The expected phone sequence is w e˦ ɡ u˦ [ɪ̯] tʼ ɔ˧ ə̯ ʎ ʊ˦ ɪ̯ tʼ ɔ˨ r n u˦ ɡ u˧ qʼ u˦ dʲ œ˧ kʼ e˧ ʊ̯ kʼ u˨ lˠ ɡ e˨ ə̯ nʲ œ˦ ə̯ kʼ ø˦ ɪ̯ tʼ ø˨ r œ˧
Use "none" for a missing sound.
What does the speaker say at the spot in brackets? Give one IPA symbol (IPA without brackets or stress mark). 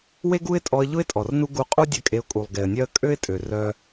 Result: ɪ̯